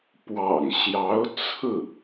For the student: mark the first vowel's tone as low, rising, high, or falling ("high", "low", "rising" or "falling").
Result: low